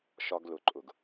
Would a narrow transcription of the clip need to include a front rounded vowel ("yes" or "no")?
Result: no